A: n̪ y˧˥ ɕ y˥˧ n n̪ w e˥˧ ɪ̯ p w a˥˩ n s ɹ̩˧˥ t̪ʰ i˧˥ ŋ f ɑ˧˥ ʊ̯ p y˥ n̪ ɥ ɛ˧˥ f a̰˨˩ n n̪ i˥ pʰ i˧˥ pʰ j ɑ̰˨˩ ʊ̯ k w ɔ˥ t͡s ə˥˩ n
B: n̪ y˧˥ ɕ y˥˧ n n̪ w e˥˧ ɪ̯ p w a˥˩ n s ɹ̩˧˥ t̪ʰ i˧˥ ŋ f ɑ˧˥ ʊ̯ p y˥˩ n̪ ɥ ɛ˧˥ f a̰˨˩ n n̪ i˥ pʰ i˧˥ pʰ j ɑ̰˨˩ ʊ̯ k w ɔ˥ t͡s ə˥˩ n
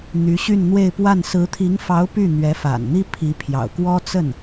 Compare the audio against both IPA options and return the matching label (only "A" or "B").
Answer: B